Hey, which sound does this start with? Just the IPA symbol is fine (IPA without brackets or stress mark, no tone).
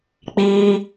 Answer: k͡p